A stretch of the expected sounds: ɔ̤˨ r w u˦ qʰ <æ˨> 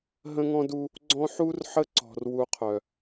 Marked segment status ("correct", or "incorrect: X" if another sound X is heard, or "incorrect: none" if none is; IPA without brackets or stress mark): incorrect: œ˨